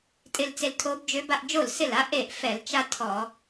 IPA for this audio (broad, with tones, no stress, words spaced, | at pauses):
tʼɪ˧lt͡se˧l tʰo˧˥bd͡ʒø˧˥ba˧ʔ d͡ʒo˥˩lsɪ˥˩l a˥ ʔe˥˩ʔfɛ˧˩˧l t͡ʃa˥tʰɔ˧˩˧